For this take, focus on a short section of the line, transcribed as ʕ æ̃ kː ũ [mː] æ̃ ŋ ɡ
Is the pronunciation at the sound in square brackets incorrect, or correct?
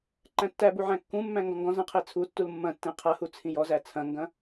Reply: correct